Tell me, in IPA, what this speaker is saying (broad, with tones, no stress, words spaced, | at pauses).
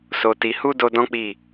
so˨ti˨ hu˧ do˧dɔ̃˦k͡pi˦˨